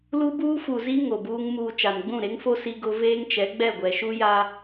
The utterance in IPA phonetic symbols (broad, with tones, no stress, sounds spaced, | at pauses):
l u˦ b uː˦ f u˨ z i˦ ŋ o˨ b uː˦ ŋ m uː˨ t͡ʃ a˨ n ɡ͡b ũ˦˨ ɾ e˦ ŋ f o˦ s i˦ ɡ ʊ˦ v eː˦ ŋ t͡ʃ ɛ˨˦ ɡ͡b ɛ˦˨ ɡʷ ɛ˨ ʃ u˦ j a˦